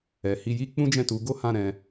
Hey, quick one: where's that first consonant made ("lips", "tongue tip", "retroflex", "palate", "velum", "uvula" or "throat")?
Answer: throat